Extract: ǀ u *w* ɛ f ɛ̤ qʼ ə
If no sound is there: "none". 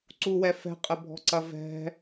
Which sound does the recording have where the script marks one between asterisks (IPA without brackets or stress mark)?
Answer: w